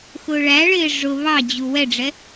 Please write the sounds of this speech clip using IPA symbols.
x ʊː ɭ æ ɭ ɪː ʐ ʊ β ɑ d͡ʑ u w ɛ ɖ͡ʐ ɛ

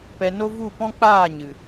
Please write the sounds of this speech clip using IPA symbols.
p ɛ˧ n o˦ v u˦˨ p ɔ̃˦ k͡p aː˦˨ ɲ ɨ˨

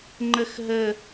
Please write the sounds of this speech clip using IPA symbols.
ŋ͡ǃ ə x ɦ ə

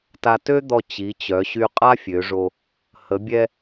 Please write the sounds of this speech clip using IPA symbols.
t a˧ t ø˥ d̪ ɔ˧ t͡ɕ i˩˧ t͡ɕ œ˩˧ ɕ y˧ qʼ a˥ fʲ ø˩˧ ʐ o˧ | h ə˩˧ bʲ ɛ˧

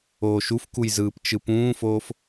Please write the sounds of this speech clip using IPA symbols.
oː ʃ u f k u j z ɯː p t͡ʃ ɯ p ũː f oː f

